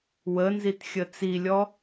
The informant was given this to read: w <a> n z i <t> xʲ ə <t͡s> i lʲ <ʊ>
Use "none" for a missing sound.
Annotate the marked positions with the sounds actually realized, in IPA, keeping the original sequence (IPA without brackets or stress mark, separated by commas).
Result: ə, t, t͡s, ɔ